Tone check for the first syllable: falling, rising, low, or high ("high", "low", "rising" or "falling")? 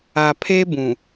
low